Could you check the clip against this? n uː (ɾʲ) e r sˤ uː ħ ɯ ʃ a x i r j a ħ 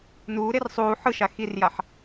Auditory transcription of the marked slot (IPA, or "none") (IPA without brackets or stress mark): ɾ